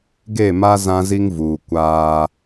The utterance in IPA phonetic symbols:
ɡ e˦˨ m a˦ z ã˦ z i˦ ŋ v uː˨ kʷ aː˦

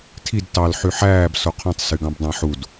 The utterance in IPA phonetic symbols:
tʰ i d t ɑ l ħ y ħ æː b s o qʰ ũ tˤ s y ɡ ɑ̃ b dˤ æ̃ ħ u d

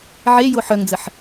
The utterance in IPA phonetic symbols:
ʕ e j o ħ œ ŋ d͡z ə ħ

